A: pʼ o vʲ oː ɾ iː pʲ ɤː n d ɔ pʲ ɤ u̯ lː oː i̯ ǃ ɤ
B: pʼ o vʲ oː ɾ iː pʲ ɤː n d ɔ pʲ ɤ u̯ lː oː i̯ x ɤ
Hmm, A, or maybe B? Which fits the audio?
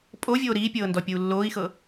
B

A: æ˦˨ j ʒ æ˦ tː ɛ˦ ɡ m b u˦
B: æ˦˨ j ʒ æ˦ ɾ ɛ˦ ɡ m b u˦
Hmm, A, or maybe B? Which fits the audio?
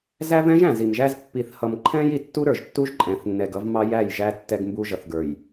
A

